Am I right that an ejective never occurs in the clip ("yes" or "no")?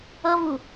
yes